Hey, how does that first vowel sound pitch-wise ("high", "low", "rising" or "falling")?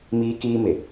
high